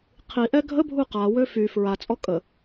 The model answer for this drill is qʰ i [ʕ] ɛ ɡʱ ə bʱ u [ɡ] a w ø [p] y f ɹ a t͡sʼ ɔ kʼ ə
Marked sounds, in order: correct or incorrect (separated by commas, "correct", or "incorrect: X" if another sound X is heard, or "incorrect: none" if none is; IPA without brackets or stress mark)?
incorrect: ʔ, incorrect: q, incorrect: f